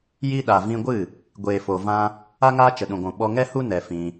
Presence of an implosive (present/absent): present